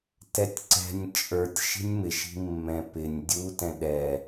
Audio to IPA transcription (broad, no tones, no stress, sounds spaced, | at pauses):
t ɛ tʲ ǀ ɛ̤ nʲ t͡ʃʼ ə˞ tʲ ʃ i̤ nʲ m ɪ ʃ i̤ mː ɛ̃ p ɪ nʲ dʲ u t ɛ̃ ɗ ɛ